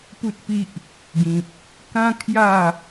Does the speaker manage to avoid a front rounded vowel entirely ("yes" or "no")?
yes